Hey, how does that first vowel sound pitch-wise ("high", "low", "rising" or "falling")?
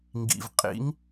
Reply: low